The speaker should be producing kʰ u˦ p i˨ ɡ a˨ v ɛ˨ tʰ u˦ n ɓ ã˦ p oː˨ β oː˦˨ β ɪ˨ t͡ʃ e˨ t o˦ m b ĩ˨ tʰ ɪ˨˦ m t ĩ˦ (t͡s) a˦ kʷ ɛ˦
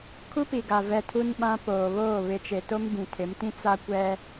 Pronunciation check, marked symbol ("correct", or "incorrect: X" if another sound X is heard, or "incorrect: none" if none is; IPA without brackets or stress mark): correct